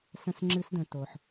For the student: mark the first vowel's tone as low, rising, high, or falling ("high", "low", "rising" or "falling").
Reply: high